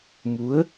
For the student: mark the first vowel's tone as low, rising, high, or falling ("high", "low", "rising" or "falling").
rising